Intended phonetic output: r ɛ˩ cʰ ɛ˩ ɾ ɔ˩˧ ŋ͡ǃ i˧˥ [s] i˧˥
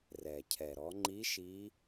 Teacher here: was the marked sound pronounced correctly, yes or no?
no